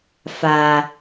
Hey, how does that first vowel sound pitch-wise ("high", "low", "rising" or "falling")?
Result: low